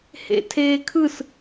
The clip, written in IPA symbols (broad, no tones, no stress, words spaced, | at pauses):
hḛtʰeːkʰɯs